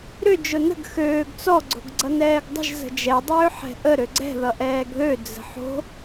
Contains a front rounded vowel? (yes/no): yes